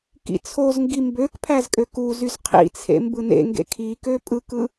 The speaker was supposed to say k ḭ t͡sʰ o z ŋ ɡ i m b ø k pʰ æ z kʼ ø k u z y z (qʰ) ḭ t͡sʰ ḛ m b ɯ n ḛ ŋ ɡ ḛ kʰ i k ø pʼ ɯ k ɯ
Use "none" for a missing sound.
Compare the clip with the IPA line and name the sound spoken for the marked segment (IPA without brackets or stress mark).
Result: qʰ